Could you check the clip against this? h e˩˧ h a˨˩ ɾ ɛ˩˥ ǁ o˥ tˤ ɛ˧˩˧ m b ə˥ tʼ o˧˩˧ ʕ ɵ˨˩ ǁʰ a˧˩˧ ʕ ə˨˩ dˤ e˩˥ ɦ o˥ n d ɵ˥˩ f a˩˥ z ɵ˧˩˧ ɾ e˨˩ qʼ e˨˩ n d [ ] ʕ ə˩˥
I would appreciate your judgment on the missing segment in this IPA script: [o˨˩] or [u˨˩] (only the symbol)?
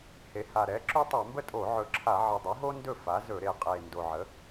o˨˩